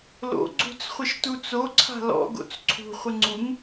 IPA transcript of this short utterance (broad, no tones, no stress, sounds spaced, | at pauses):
l o̰ ɡ͡ǀ ṳ t͡s χʷ ɪ ʃ t u t͡s o ǀʰ a̤ l ɔ̰ ɡ o̰ t͡s ǀʰ ṳ χʷ ɪ ŋ͡ǀ u ŋ